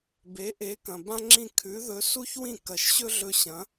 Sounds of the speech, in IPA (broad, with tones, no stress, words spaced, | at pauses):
be˩˥ʔe˩˥kɐ̃˩ bã˥ŋ͡ǁĩ˥˩ kʰʉ˩˥ðɵ˩˥ su˥çwĩ˥˩ kɐ˩˥ʃɕɵ˥ɮɵ˧ɕɐ̃˩˥